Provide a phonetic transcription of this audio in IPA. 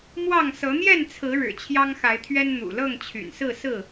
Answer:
m w ɑ˥˨ ŋ s ɤ˨˦ n̪ j ɛ˥˨ n t͡sʰ ɹ̩˨˦ ɻ ɻ̩˨˩ t͡ɕʰ j ɑ˦ ŋ x a˨˦ ɪ̯ t̪ʰ ɥ ɛ˦ n n̪ ṵ˨˩ l ɤ˥˨ ŋ t͡ɕʰ y̰˨˩ n s ɹ̩˥˨ s ɹ̩˥˨

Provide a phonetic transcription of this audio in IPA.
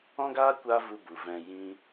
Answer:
ɔ̃˦ ɡ aː˦ kʷ aː˦ v u˧ b u˨ v ɛ̃˧ j ĩ˦

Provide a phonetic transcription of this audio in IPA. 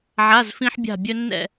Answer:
ʕ a˩˧˩ z f ĩ˧ ħ bʲ a̤˧˩ bʲ ɵ˧ nː ɛ̰˥˨

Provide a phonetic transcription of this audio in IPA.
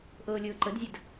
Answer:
ʔ ɤː lʲ ɤː ǃ ə d zʲ ə d

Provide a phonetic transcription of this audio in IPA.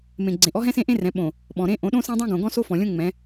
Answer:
m ẽ˨ ɡ͡ǀ ẽ˨ ʔ ɔ˦ ɦ ɛ̃˦ s ẽ˦ ʔ ẽ˦ r ɛ̃˨˦ ɓ õ˨ | ɓ ɔ̃˨ ɾ ẽ˦ ʔ õ˨˦ ɗ õ˦ s ɛ̃˦ dˤ õ˦ ɡ õ˨ ɡ ɔ̃˦ s o˦ f ɔ̃˨ lʲ õ˦ ŋ͡m ɛ̃˨˦

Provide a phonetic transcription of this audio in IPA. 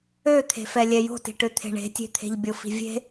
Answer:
ø t̪ʰ e̤ f ɛ lʲ ɛ j o̤ t i̤ ʈ ø t̪ʰ e̤ ɳ e̤ tʲ e̤ t̪ʰ e̤ ʎ bʲ o f i̤ vʲ e̤

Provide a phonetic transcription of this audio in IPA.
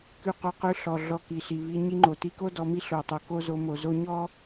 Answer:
k ʉ˧ q o˧ q ʉ˧ ɬ ɔ˨ ɮ ɔ˧ k i˨ ɬ i˨ v i˧ ɲ i˧ ŋ͡ǃ o˨ t i˧ k o˦ d ɔ˧ m i˦ ɬ o˨ tˤ o˨ k o˦ z o˧ m o˨ z o˧ ɲ ɔ˦

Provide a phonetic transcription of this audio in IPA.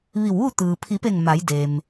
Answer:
ʋ i˧˩ w ʋ u˥˨ t̪ ɯː˩ pʰ i˩˧ p e˧˩ ŋ m a˩˧ j d eː˩ m

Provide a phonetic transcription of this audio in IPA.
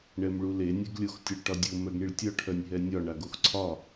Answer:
ɳ ɛ m ɭ u l e nʲ e ɡ lʲ o x tʲ œ ɭ ʈ ɒ dʲ o m œ ɡ ɳ i ɭ tʲ ɒ ʈʰ œ nʲ ɦ ɛ nʲ ɒ ɳ a ɡ o x ǀʰ ɒ

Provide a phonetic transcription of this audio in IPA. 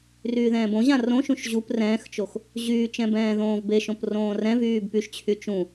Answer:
r yː ð ɛ̃ː b õ ʑ ã r õ ʃ ũ ʃ ʑ u p r ɛ̃ː x t͡ʃ o x | ʑ yː t͡ʃ ɛ̃ b ɛ̃ː ð õː v b e ʃ õ p r õː r ɛ̃ v yː b p y ʃ t͡ɕʰ y t͡ʃ ũ

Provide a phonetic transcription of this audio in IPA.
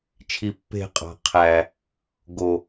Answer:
t͡ʃʰ i˧ pː e̤˦˨ qʼ ɑ̤˨ qʰ æ˨ | ɡ o˨

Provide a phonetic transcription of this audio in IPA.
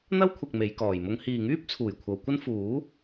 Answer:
n̪ ɐ˥ w kʷʰ ɐ˨ k̚ m e˨˧ j k ɔː˨˩ j m ʊ˥ ŋ h iː˨ ŋ yː˥ p̚ t͡sʰ uː˨˩ j kʷʰ ɐ˨˧ w kʷ ɐ˥ n f uː˨˥

